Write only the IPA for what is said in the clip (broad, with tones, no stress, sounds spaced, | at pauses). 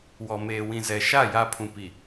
w ɔ˨ m eː˨ w ĩ˨ z ɛ˨ ʃ a˦˨ j a˦ pʰ ũ˨ p i˨